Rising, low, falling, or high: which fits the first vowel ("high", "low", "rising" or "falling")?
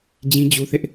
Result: high